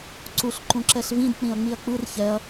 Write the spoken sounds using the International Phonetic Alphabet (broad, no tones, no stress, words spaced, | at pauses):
ǀuɬ ǃũǁɛɬvĩd k͡pĩɐ̯ŋ͡miɐ̯k͡pɯr çɛɐ̯